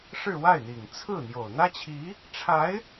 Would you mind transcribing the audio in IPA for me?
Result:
ʂ ɻ̩˥˧ w a˥˩ ɪ̯ n̪ i˨˩ ŋ t͡sʰ ɹ̩˥˩ n̪ j o˨˩ ʊ̯ n̪ ä˥ t͡ɕʰ i˧˥ | ʈ͡ʂʰ a˧˥ ɪ̯

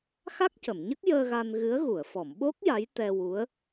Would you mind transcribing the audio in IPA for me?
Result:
x a˦˥ k̚ c ə˨˩˨ m ɲ ə˦˥ k̚ j əː˧ ɣ a˧ n ɣ ɨ˧˥ ə̯ ɣ u˨˩˨ ə̯ f ɔ˨˩˨ m ɓ o˦˥ k̚ j a˧˥ j t̪ ɛ˧ w u˧˥ ə̯

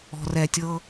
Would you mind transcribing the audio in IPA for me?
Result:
ɔ̤˧ r ɛ˧ tʲ ɤ˦

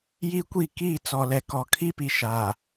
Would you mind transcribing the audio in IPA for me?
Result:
j i˦ kʷ i˦˨ k iː˦˨ t͡s ɔ˨ l ɛ˨ k ɔ˨ kʰ i˦ p i˨ ʃ a˨

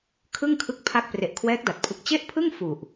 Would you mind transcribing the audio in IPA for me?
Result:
kʰ ɯ˥˩ ŋ kʰ ɯ˦˥ k̚ pʰ a˦˥ k̚ p r e˨˩ ʔ kʰ w ɛː˦˥ k̚ d a˨˩ t̚ pʰ ɯ˨˩ k̚ t͡ɕ e˥˩ ʔ pʰ ɯ˥˩ ŋ f u˨˩ ʔ

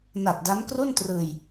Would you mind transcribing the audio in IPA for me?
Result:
n a˨˩ t̚ d a˦˥ n k r u˥˩ n t r ɯː˧ j

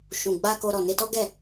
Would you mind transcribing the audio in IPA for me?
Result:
ʃ ũ˨ ɡ͡b a˧ k o˧ ɾ ɔ˨ n e˧ t ɔ˦ ɡ ɛ˦˨

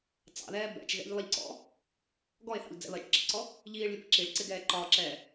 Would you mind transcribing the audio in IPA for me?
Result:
t͡s ɑ̰ ð ɛː b ɛ̰ t͡ʃ ɣ ɛ̰ ʎ lˠ i ʎ ǀ ɔ̰ | ɡ ɔ e̯ θ ɑ̰ ʎ d͡z ɛ̰ β ɜ t͡ʃ ǁ ɪ ǀ ɔ | ʎ iː ɭ lʲ ə p ǁ i ɭ ǀ ɪ ɡ ɛː ǃ ɒː ǁ ɛː

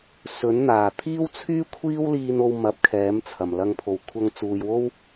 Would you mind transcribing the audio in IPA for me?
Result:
s ɵ˨˥ n n̪ aː˨˩ t̪ʰ iː˥ w t͡sʰ yː˥ kʷʰ iː˥ w l iː˧ n o˧ w m ɐ˨ p̚ kʰ ɛː˨˥ m t͡sʰ ɐ˨˩ m l ɐ˧ ŋ pʰ o˨˩ w kʷʰ ɐ˧ ŋ t͡s uː˨ j w o˥ w

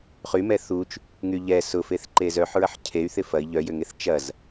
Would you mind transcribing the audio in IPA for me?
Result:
χ y m ɛ θ u t͡ʃ | ŋ y ʎ ɛ s ʊ f e θ ǃ e z œ ħ ɹ ɐ ħ cʰ e y̯ θ ɪ f ɐ i̯ ʎ œ j ʏ ŋ e θ t͡ʃ ɐ z

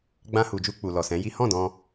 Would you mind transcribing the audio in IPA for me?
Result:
ɡ͡b ã˧ h u˨ d͡ʒ u˧ k͡p u˨ l ɔ˨ s ɛ̃˨˦ j i˦ h ɔ̃˦˨ d ɔ̃˧

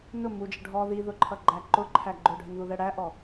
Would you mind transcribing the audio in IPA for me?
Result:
n ʊ m u d͡ʒ ə ɖʱ ɔ ð i ð ʊ ǃʰ ʌ ɡ͡ǃ æ ǃ ʊ ǃʰ æ ɡ͡ǃ ʊ ɖʱ ə n ð u ð ɛ ɽ æ ʔ ɔ

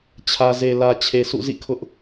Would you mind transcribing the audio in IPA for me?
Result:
t͡ɕʰ ä˨ z e˨ l ä˨ t͡ɕʰ e˨ s ṵ˦˨ z ḭ˦˨ kʰ ʊ˦ ʔ

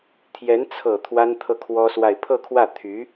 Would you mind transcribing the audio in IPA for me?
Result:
t̪ʰ j ɛ˧˥ n t͡sʰ ɤ˨˩ t̪ʰ w a˥ n t̪ʰ ɤ˥˩ kʰ w ɔ˥ s w a˥˧ ɪ̯ pʰ ɤ˥˧ kʰ w ä˥˩ t̪ʰ y˧˥

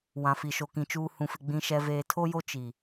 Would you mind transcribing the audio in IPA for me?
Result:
w ã˨ f i˨ ʃ o˨ k ĩ˨ t͡ʃ uː˨ h ũ˨ f ɪ˨ ɡ͡b ĩ˨ ʃ ɛ˨ v eː˨ tʰ o˦ j o˦ t͡ʃ i˨

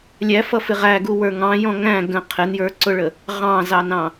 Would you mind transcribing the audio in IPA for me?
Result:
lʲ æ f ʌ f ɪ ʁ æ ɡ u w ə˞ ŋ ɑ̃ j ɔ̃ ŋ æ̃ ɡ ə̃ qʰ ɪ n j ə˞ ǀ ʊ ɭ ə | ʁ ɑ̃ z ɑ n ɑ̃

